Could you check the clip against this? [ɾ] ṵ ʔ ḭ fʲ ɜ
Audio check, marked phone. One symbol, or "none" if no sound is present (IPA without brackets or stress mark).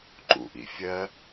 ǃ